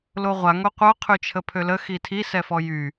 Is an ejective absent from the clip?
yes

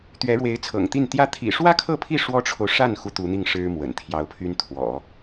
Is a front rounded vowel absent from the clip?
no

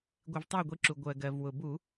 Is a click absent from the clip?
no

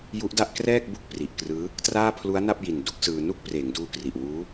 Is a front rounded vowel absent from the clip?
yes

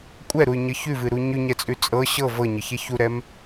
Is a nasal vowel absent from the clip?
yes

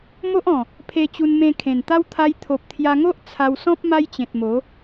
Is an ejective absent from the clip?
yes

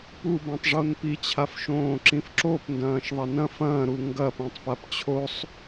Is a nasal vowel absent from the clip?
no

